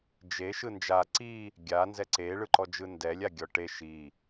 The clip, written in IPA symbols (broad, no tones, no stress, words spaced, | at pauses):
d͡ʒe ʃɯnd͡ʒa ǀi | ɡʲanzɛ ǀeɭɯǃɔd͡ʒɯ ndɛlʲa ɡʲɔʈe ʃi